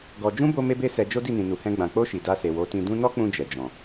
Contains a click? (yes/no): no